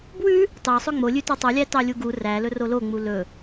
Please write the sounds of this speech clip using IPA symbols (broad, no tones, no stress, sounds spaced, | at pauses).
b w ʉ | t ɑ sˤ ɵ ŋ͡m o lʲ ʉ t ʉ tˤ u lʲ æ t ɑ lʲ u ɡ u r æ l ɵ r o l o ŋ͡m u l ɵ